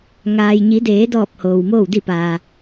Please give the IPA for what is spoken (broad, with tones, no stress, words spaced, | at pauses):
ŋaː˩jɲi˩˧deː˩˧dɔː˧˩p̚ hoː˩wmoː˥˨wdi˥˨paː˩